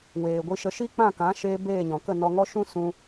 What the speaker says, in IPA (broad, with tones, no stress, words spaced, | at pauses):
weː˨ɡʷi˧ʃə˧ ʃi˦k͡pã˦˨kã˨˦ʃeː˧ beː˦˨ɲɔ̃˨kə˦˨ nɔ˧ŋɔ˦ ʃũ˦sũ˧